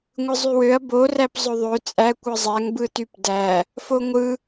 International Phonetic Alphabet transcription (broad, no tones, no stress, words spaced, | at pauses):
ŋʷɯzˤywøɐ̯ boræp zˤøðˤø t͡sʼæ kʷɯzˤæŋ bɯtypdæ | foŋʷɯ